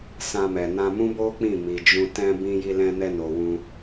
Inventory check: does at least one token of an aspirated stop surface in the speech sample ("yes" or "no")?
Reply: no